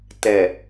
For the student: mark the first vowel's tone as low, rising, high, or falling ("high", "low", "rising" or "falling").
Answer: low